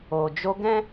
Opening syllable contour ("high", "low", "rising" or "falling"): low